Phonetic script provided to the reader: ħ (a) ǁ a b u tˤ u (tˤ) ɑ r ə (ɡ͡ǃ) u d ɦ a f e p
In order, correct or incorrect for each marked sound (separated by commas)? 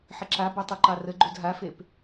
incorrect, incorrect, correct